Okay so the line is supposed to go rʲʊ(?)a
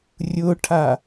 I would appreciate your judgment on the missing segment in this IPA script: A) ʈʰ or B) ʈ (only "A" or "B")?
A